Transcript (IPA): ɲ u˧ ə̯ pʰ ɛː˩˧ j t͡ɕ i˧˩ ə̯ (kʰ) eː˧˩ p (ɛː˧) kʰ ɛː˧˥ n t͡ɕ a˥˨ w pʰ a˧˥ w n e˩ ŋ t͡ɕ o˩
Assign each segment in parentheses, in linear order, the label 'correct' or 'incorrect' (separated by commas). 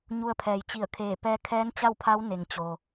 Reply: correct, correct